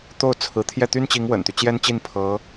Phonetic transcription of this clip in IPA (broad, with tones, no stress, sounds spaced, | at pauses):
t̪ o˥˩ ʊ̯ t͡sʰ ɹ̩˧˥ t̪ʰ j ɛ˥˩ t̪ y˥ n t͡ɕ i˧˥ ŋ w ə̰˨˩ n t̪ y˦ t͡ɕ j ɛ˥ n t͡ɕ i˥˩ n pʰ ɤ˧˥